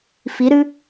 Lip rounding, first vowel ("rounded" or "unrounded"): unrounded